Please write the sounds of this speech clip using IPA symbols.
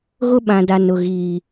ɣʊ˦ɓã˨da˨ nʊ˨ɣiː˨

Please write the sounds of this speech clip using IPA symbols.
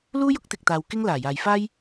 luː˥jʊ˥k̚t̪ɪ˨k̚t̪aː˨w kɪ˥ŋ laː˨˩jaː˨jfaː˥j

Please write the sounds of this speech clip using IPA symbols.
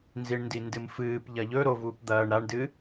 nziɳndindɨmfɨːp ʎɐʎɵ ɾovuːp d̪ɐːɳ ɾaɳdɨ

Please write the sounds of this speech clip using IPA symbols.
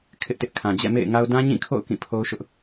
kʰɪ˦ʔtɪ˦ʔkʰã˨ d͡ʑɛ̰˦˨mḛ˦˨ɪ̯ŋa˦ʊ̯ dã˦ɲĩ˦˨kʰo̰˦˨ʊ̯ kĩ˦˨pʰo˦ʊ̯ʃʊ˦ʔ

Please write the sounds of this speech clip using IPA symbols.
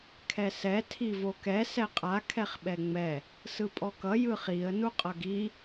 kʰɛsɛ tʰivokɛ sɛqʼa kʰɛχɓɛŋ͡mɛ | sɯpʼɔkʌ jɯχiə̯ nuqʼʌɡi

